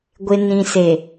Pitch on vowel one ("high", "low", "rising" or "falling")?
low